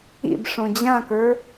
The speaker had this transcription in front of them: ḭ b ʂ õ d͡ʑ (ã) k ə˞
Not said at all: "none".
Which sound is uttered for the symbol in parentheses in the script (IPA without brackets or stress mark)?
ã